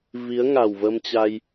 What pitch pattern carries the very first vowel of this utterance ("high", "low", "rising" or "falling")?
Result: rising